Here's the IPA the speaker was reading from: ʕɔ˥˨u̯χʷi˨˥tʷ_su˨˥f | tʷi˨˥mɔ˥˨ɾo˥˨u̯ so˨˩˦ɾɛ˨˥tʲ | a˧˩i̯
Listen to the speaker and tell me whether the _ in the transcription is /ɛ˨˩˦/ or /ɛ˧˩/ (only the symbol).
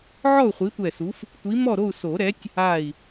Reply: ɛ˧˩